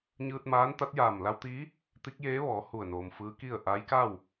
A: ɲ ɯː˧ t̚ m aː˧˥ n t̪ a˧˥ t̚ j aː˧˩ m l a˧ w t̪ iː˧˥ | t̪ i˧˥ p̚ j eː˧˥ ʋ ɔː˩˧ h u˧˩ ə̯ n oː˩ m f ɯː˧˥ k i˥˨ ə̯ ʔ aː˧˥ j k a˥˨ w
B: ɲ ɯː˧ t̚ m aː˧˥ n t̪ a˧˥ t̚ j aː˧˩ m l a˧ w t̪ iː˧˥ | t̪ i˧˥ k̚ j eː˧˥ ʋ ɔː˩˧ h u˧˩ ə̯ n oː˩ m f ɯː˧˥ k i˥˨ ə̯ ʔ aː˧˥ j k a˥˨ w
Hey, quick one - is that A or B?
B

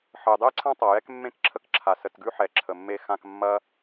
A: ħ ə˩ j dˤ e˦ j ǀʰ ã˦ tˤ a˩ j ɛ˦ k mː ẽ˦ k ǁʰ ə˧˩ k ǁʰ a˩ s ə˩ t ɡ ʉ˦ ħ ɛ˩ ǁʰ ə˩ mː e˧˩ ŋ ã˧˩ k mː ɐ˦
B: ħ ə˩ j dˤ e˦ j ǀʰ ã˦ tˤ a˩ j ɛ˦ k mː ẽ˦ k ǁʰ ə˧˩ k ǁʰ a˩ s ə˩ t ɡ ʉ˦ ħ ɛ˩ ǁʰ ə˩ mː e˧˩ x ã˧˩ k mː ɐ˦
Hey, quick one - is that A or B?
B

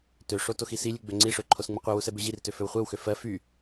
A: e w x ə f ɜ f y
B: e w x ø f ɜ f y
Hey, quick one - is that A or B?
B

